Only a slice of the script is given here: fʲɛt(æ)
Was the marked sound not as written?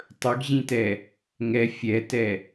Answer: yes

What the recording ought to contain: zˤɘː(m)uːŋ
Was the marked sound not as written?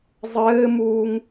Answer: no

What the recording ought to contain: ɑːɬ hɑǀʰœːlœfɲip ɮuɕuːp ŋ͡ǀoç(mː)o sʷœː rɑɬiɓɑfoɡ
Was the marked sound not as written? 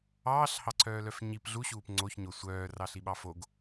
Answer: yes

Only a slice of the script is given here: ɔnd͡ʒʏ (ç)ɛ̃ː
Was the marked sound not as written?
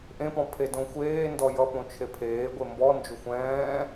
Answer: yes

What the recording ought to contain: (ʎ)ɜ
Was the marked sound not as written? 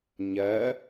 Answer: yes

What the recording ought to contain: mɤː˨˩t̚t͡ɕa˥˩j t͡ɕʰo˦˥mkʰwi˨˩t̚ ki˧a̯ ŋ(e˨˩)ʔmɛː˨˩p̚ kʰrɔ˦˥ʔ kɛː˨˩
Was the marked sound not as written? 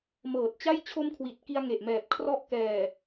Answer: no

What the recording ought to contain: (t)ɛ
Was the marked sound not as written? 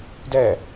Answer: yes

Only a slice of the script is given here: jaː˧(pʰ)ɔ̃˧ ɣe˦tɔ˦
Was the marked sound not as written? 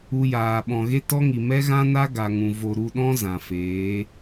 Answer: yes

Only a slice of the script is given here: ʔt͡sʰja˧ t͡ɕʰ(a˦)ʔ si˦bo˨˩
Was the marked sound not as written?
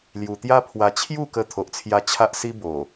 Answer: no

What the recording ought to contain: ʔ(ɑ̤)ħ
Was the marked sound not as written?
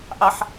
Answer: yes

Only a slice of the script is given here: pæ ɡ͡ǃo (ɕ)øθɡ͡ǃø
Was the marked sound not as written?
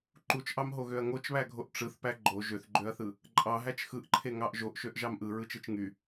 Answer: yes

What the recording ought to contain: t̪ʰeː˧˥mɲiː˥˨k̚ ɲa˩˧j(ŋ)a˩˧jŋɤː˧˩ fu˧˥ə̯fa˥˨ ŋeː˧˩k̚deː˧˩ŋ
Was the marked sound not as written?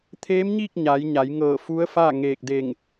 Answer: yes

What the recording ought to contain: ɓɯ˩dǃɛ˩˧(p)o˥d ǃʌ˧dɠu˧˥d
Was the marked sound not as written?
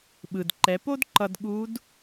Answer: no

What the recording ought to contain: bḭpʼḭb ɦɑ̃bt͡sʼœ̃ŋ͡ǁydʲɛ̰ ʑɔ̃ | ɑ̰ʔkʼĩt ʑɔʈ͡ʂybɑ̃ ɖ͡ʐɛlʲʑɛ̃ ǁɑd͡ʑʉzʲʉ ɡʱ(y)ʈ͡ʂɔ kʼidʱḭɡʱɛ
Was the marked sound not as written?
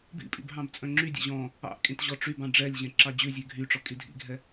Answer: no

